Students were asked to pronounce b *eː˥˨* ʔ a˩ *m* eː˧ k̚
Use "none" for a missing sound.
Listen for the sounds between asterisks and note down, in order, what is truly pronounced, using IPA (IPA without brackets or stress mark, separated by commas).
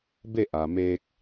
e˥˨, m